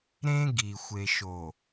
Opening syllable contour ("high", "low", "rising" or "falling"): high